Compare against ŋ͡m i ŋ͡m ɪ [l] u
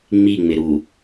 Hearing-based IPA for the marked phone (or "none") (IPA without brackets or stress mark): ɾ